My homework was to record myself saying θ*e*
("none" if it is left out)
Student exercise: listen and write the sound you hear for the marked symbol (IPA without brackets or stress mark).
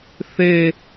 e